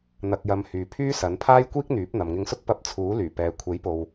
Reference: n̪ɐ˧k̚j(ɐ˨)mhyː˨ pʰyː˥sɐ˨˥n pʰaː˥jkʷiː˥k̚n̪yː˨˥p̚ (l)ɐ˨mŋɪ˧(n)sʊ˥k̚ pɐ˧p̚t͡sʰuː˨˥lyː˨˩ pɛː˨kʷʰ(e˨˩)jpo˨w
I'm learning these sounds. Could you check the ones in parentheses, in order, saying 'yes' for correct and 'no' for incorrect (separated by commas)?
no, no, no, no